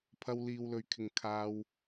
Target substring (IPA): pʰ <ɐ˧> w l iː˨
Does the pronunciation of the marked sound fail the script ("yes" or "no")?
no